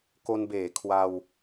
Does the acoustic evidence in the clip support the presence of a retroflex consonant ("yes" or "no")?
no